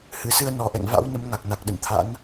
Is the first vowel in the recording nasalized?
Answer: no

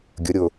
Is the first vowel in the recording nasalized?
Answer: no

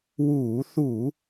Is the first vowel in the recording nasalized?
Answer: no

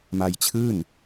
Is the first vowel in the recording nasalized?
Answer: no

